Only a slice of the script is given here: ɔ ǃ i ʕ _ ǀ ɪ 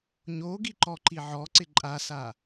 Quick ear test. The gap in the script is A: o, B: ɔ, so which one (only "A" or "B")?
B